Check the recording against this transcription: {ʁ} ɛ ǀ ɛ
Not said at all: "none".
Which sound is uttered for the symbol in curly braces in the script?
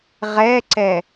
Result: ʁ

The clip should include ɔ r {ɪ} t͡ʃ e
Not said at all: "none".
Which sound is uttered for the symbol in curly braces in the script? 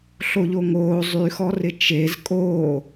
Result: ɪ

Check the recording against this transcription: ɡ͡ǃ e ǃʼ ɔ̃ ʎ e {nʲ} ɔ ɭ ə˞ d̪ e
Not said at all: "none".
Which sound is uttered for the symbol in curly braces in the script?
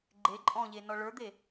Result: n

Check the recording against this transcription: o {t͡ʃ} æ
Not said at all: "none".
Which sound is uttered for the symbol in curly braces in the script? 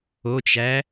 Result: t͡ʃ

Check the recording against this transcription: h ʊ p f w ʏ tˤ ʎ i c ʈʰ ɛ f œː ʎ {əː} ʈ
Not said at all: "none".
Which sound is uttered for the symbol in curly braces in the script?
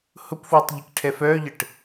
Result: ə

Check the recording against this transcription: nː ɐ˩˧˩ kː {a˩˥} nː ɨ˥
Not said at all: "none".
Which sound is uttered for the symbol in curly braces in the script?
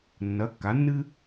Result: a˩˥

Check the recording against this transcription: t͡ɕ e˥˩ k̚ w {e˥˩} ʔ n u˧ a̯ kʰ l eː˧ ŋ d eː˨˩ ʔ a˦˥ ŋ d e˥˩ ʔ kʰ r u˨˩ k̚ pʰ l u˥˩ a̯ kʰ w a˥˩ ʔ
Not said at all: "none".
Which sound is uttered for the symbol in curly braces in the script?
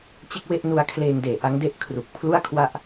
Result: e˥˩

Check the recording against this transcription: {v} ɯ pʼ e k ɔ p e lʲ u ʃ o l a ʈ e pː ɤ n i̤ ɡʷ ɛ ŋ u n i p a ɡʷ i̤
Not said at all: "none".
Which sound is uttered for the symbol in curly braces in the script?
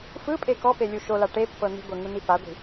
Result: f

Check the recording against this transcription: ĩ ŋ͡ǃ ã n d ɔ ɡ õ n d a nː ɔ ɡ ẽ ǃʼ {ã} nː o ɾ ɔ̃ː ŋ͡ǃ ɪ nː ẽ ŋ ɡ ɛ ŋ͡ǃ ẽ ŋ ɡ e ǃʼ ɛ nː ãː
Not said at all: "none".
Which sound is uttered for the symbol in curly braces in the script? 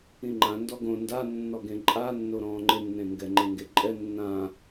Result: a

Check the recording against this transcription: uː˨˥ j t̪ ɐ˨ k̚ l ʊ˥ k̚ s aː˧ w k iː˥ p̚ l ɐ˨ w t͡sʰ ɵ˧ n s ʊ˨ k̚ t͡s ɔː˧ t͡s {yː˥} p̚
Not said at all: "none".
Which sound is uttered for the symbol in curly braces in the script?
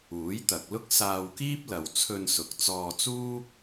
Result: uː˥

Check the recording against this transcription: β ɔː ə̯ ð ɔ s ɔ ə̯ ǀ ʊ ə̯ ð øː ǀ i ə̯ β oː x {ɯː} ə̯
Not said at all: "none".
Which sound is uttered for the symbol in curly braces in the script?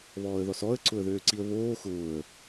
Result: ʊː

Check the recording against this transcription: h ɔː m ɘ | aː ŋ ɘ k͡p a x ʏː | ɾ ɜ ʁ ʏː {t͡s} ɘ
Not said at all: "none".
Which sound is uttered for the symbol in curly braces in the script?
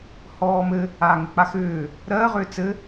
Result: t͡s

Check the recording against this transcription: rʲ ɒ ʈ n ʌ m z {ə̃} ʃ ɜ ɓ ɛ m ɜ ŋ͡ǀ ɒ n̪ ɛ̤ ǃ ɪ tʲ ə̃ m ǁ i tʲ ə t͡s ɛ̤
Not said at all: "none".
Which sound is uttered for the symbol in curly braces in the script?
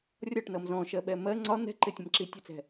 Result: ɔ̃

